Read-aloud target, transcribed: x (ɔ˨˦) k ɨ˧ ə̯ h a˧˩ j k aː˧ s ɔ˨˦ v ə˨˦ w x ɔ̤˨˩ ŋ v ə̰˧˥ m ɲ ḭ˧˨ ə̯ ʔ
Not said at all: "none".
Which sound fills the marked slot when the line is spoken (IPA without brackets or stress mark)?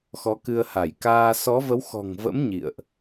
ɔ˨˦